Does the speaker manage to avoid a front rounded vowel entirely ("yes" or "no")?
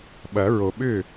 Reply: no